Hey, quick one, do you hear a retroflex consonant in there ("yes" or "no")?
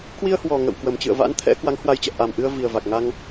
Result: no